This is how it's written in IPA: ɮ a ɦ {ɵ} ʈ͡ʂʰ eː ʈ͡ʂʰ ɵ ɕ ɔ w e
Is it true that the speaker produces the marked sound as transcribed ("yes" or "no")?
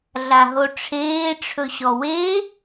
no